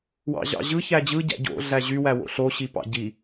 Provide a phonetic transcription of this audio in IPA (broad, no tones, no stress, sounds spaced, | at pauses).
w ɑ̰ ʑ ɑ̰ ʑ ɯ ç æ d͡ʑ ɯ ɟ æ̰ ɟ o̰ ɮ æ ʑ y w æ w o̰ ɬ o ɕ i p ɑ̰ ɟ i